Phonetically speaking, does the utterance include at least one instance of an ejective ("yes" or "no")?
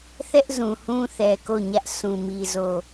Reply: no